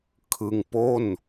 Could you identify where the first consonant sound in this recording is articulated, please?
velar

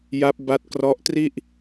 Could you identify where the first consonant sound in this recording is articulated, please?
palatal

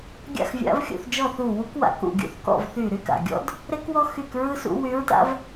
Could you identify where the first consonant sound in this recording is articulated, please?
velar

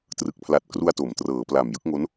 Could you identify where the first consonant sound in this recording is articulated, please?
alveolar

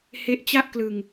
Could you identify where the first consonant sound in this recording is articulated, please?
glottal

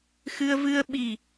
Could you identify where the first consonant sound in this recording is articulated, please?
velar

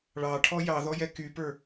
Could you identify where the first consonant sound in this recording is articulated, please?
retroflex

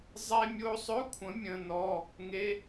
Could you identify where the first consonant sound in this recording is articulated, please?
alveolar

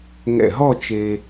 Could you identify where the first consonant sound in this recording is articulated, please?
velar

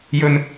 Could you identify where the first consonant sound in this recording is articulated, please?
palatal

